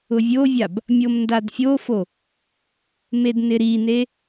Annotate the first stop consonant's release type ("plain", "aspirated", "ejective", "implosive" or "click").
plain